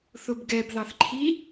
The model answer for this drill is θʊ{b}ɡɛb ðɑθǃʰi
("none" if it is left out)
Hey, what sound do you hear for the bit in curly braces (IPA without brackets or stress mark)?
b